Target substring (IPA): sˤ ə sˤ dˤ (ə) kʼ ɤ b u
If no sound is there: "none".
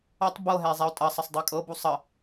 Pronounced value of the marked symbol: ɛ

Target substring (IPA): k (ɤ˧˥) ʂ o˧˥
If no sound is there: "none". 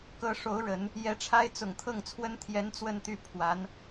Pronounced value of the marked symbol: ɤ˧˥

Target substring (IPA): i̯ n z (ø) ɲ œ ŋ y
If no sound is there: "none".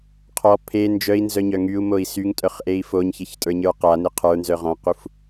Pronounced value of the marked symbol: œ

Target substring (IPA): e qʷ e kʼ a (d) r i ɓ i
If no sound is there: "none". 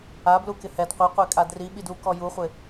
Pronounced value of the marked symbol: d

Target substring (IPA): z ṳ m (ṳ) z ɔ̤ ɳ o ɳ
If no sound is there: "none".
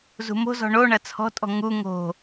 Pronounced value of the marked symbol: o̤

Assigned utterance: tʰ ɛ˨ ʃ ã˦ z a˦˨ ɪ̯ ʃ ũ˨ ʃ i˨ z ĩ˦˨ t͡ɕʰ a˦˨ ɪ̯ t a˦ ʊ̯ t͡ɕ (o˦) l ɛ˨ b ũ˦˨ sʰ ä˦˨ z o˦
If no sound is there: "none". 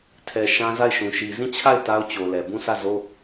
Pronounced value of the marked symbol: o˨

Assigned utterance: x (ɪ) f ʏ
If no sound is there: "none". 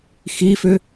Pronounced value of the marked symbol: i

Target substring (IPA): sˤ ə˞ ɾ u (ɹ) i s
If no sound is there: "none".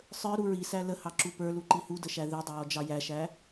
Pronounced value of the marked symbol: ɹ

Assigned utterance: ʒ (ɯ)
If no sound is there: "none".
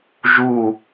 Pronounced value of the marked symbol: u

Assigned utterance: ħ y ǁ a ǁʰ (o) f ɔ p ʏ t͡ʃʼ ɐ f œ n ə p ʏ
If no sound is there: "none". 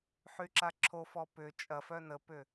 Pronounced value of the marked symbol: o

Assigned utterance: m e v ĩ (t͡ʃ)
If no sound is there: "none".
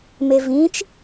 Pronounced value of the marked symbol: t͡ʃ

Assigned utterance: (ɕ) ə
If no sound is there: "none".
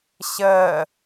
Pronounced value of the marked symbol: ɕ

